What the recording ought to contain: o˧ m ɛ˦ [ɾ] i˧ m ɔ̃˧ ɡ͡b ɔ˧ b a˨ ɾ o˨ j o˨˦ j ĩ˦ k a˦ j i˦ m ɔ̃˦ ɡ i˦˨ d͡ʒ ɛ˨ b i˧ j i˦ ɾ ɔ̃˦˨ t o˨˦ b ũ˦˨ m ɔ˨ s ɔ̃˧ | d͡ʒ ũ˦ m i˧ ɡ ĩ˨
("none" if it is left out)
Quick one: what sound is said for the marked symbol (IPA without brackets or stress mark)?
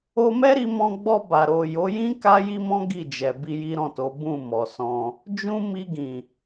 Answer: ɾ